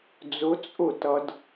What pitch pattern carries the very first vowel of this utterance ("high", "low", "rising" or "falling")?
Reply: rising